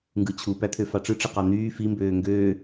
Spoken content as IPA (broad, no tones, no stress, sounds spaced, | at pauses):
ŋ ɡ ɯ t͡ɕʰ u p æ t̪ʰ ø f ɑ ʈ͡ʂ ɯ ʈ͡ʂ ɯ q ɑ n̪ yː f i m b øː ŋ ɡ øː